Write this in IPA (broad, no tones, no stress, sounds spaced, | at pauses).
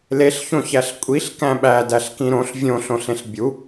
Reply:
l e ɬ ç õ ç æ ɬ kʷʼ i ɬ k æ̃ ɓ æ d æ ɬ k ĩ ɾ õ ɬ vʲ õ ɬ õ ɬ ẽ ɬ bʲ u